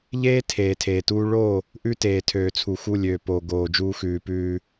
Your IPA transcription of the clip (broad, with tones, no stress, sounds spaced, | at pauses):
ʎ eː˦ tʰ eː˨ tʰ eː˨ t uː˦ ɭ o˦˨ | ʔ ʉ˦ t eː˨ tʰ øː˨ t͡sʰ u˨ x u˦˨ lʲ øː˨ p oː˨ ɡ oː˨ d͡ʒ uː˦ x ʉː˨ p ʉː˦